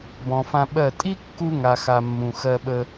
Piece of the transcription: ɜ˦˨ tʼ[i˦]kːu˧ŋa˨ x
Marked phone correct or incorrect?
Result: correct